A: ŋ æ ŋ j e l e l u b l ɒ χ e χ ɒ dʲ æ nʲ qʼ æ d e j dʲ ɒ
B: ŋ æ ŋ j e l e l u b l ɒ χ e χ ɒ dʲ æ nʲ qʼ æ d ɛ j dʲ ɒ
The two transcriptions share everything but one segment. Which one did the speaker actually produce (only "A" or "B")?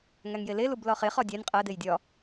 A